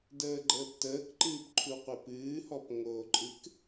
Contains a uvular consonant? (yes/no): yes